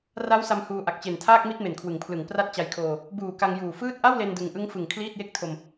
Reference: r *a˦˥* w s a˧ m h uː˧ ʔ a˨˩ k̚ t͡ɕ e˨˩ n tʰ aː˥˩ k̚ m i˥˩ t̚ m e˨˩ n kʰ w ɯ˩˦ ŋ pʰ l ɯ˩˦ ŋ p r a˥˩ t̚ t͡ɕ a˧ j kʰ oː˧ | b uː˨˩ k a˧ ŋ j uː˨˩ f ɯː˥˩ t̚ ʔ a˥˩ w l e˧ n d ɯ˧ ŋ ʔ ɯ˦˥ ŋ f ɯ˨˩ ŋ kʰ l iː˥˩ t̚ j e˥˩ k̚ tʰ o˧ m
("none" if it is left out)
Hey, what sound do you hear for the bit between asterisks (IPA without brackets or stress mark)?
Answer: a˦˥